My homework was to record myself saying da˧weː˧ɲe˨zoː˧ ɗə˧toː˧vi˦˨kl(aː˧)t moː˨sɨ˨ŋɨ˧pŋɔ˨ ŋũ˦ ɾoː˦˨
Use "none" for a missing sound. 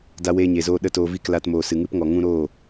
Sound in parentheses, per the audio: a˧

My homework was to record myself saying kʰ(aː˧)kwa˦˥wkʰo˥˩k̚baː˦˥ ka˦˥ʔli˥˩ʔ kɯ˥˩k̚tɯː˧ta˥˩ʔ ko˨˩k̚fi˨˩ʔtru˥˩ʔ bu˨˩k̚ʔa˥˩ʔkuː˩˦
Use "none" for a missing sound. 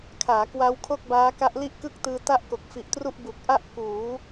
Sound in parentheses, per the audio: aː˩˦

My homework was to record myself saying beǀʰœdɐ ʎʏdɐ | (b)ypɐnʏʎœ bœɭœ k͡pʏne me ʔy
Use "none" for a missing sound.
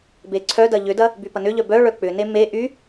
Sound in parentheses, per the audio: b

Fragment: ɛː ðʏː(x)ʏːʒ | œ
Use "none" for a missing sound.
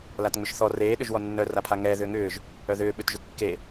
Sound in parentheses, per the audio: ŋ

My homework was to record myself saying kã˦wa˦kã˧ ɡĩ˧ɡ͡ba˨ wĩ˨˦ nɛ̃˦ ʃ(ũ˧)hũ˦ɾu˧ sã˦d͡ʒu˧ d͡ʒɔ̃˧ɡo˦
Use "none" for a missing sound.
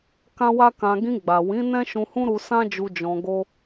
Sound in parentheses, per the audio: ũ˧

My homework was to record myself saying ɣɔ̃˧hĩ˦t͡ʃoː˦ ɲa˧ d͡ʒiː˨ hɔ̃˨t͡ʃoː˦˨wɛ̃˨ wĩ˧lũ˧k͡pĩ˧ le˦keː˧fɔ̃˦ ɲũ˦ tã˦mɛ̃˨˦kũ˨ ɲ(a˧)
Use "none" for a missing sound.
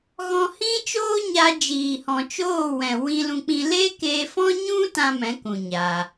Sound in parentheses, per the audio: a˧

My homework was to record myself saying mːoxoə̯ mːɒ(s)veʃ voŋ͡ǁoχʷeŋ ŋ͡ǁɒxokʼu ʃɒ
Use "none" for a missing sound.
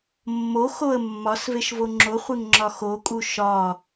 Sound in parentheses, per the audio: s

